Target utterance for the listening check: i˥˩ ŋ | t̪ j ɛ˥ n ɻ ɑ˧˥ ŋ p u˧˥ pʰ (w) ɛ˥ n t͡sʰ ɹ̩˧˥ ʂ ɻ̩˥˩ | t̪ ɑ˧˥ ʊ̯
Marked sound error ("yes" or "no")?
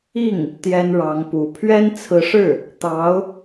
yes